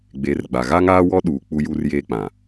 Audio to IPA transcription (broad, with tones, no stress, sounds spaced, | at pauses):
ɡ͡b e˨˦ r ɡ͡b a˨ ɣ a˦ ŋ aː˦ w ɔ˦ ɗ uː˨ k͡p u˦ j u˦ r j eː˦ k͡p ã˨